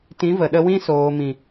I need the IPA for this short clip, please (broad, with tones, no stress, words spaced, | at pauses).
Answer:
tĩ˨˦və˨ɗə˧wĩ˦ soː˨mĩ˨